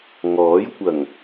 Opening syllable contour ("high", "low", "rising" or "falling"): rising